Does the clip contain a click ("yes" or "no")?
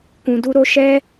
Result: no